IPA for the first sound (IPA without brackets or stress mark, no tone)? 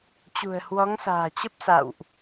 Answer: t͡ɕ